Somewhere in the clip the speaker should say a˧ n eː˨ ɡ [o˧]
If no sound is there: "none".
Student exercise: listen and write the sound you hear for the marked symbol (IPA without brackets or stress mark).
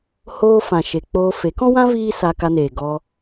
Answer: ɔ˧